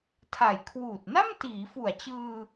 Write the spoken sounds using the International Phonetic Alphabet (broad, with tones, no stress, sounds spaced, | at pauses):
tʰ a˨˩ j kʰ w uː˨˩ t̚ n a˥˩ m t iː˩˦ f u˨˩ a̯ t͡ɕ ɯː˧